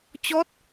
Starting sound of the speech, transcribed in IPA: t͡ɕ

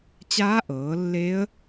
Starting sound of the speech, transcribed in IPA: t͡ɕ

